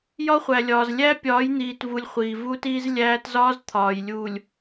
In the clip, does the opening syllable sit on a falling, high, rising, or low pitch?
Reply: high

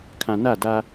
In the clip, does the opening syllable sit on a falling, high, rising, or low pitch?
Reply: low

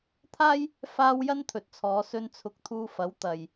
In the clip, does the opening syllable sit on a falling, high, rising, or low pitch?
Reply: high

